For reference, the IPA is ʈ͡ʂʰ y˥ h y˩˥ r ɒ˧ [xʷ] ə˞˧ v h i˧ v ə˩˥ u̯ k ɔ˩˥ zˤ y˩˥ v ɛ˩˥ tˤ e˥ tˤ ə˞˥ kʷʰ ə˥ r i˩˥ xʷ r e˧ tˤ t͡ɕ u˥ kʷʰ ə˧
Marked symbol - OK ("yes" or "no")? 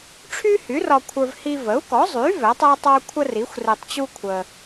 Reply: no